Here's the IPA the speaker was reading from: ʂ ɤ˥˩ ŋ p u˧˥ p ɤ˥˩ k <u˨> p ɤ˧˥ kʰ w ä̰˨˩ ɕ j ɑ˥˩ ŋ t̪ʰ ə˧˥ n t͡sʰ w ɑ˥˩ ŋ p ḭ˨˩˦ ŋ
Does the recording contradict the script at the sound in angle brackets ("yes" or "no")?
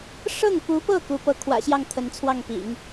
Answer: yes